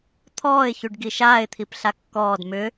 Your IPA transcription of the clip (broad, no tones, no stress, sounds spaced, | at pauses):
t̪ʰ ɔː ɪ̯ ç y ɖ ɡ i ʃ aː ɪ̯ t̪ʰ i p ɬ a kː ɔː d m ʏ